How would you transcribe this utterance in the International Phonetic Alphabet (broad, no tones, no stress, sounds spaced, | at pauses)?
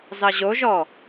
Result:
z ɑ ʑ o ʒ ɔː